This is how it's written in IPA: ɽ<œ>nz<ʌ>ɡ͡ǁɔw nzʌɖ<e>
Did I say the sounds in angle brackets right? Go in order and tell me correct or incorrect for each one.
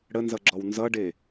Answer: incorrect: ə, correct, correct

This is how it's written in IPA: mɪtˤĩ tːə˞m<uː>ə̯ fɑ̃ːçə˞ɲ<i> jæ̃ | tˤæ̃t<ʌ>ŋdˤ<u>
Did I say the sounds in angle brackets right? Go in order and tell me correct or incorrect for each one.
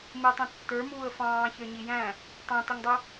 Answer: correct, correct, correct, correct

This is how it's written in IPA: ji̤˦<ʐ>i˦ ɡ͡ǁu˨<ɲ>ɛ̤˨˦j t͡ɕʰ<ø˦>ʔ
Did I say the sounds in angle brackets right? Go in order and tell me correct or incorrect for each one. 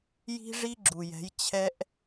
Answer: correct, incorrect: j, incorrect: ɛ˦

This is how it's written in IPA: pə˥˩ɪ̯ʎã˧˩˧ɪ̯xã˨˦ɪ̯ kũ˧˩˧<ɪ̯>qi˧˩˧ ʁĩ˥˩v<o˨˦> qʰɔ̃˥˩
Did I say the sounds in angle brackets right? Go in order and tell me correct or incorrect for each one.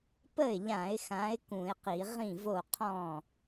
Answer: correct, incorrect: o˥˩

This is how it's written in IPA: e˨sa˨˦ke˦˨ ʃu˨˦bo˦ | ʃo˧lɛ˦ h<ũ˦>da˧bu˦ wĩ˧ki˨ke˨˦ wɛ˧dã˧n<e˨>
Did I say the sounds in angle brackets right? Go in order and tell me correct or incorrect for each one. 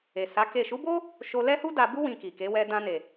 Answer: incorrect: u˦, correct

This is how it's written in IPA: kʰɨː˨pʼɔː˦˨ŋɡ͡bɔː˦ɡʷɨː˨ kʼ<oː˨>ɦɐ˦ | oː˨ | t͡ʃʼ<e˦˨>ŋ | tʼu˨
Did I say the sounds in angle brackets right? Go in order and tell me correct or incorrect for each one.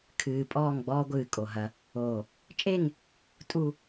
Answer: incorrect: o˨, correct

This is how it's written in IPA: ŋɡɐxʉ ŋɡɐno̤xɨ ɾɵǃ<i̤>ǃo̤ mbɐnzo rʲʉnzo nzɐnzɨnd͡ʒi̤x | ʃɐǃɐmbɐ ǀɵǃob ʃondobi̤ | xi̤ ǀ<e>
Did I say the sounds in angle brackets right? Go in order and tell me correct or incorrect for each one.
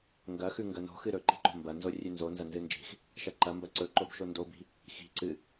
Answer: correct, incorrect: ɨ

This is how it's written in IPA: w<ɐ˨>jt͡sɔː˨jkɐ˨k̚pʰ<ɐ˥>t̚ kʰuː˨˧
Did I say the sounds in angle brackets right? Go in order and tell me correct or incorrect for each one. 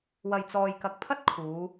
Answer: correct, correct

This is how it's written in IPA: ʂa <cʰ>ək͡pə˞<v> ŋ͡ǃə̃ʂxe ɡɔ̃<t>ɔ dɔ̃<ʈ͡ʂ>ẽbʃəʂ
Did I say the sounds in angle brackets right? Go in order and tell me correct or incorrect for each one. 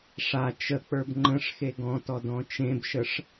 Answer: incorrect: t͡ʃ, incorrect: b, correct, incorrect: t͡ʃ

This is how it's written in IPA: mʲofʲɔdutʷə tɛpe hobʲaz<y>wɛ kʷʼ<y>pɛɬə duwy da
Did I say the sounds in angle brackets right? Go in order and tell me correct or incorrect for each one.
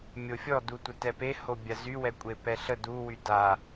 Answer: correct, incorrect: e

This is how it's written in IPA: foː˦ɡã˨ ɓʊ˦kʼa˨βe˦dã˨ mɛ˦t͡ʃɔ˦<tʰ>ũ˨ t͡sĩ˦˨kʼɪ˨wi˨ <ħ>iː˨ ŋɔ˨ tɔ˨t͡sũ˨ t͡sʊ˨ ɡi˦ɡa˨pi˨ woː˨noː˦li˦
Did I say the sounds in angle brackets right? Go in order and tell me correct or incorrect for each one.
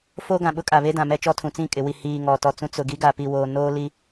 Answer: correct, incorrect: h

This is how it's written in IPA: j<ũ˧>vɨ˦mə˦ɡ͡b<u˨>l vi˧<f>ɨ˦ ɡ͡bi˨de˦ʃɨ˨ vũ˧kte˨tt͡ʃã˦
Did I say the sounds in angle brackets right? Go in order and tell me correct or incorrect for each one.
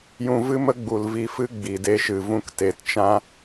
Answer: correct, correct, correct

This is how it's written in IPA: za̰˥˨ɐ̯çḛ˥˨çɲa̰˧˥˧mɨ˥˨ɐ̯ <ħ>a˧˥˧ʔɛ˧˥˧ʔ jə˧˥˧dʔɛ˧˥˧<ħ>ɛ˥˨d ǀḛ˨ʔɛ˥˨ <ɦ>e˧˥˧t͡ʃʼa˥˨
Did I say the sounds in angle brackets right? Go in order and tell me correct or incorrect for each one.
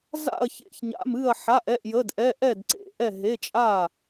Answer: correct, incorrect: ʔ, correct

